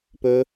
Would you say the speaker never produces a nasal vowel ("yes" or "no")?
yes